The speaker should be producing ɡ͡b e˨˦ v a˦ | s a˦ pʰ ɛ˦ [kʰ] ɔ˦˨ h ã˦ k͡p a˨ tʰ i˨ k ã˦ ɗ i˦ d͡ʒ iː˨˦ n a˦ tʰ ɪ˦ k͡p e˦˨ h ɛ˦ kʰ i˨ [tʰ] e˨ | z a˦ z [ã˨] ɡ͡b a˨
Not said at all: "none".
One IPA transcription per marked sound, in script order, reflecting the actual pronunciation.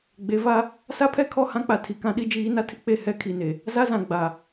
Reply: kʰ, n, ã˨

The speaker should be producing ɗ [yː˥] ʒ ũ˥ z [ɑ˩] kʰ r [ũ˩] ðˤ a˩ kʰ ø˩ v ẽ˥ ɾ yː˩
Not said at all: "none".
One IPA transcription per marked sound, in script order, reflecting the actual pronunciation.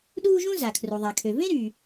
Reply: uː˥, a˩, u˩

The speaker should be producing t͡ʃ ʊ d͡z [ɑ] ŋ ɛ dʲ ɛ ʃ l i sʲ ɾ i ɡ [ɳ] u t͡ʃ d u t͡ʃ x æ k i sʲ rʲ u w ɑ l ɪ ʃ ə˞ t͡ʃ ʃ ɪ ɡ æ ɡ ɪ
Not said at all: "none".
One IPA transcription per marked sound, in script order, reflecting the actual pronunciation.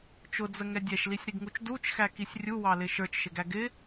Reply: ə, ŋ

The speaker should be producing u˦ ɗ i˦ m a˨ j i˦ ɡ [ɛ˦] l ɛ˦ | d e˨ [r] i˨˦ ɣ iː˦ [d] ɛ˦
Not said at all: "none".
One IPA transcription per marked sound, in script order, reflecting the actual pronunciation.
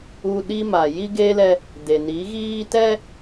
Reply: e˦, n, t

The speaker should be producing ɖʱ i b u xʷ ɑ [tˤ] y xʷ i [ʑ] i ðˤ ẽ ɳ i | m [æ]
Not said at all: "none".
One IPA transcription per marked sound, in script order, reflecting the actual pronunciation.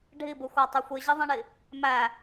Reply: tˤ, ʑ, æ

